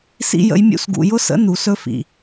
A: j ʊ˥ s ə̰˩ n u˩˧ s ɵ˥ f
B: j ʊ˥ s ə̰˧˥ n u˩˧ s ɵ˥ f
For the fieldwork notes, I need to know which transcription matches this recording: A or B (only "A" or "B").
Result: B